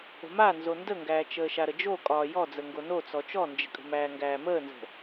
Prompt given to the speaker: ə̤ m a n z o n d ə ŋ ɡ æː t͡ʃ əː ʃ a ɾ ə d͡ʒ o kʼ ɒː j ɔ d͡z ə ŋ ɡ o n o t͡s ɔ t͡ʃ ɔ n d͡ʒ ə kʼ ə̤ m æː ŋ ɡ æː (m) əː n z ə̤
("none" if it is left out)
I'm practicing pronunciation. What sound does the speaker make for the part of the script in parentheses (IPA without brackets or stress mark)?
m